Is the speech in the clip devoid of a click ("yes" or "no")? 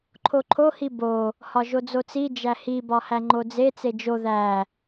no